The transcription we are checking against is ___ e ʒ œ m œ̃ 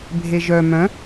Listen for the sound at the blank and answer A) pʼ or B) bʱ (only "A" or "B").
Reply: B